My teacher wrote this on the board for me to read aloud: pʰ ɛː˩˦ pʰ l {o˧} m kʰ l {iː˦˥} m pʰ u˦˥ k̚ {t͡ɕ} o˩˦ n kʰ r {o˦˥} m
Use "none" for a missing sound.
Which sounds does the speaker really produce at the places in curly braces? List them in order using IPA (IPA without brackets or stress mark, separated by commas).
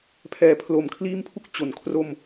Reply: o˩˦, iː˦˥, t͡ɕ, o˧